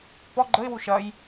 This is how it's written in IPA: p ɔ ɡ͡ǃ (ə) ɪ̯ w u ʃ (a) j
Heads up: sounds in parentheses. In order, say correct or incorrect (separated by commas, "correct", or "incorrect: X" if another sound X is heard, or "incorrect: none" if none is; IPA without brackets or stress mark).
correct, incorrect: ɐ